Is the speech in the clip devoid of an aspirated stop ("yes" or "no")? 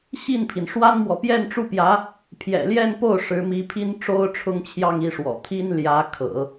no